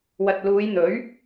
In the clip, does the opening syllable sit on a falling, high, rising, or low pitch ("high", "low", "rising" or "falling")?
low